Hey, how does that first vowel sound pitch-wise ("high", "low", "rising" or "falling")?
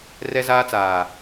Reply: high